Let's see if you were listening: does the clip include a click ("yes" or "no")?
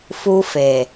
no